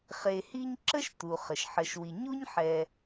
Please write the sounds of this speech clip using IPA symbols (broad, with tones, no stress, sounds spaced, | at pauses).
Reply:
χ e˨ h i˦ ɲ ǁ ə˥ ʃ t u˩ χ ə˩ ʃ ħ ə˨ ʃ w i˨ ɲ u˥ ɲ ħ ɛ˨